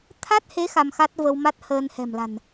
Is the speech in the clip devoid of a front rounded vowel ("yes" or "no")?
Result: yes